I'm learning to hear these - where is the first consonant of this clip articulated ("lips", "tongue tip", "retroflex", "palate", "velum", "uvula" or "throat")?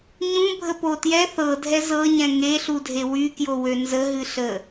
palate